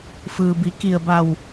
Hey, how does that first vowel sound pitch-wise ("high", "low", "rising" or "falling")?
low